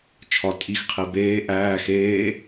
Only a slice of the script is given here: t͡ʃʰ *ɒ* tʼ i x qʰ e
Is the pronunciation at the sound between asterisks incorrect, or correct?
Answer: correct